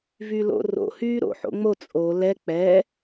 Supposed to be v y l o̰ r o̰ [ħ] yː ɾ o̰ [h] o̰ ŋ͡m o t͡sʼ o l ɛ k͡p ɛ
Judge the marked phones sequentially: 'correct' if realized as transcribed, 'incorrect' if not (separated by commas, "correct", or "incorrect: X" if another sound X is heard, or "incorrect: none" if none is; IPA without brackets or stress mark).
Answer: incorrect: h, incorrect: ħ